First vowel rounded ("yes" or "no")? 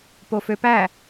yes